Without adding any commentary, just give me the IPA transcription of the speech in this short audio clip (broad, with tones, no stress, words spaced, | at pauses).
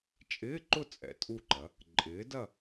t͡ʃʼɪː˧˥˧ǃʊ˥˨ t͡sʼɛ̰˩˥tʼu˥˨ǃɐ˩˥ | ǃʼɪː˩˥dɐ˥˨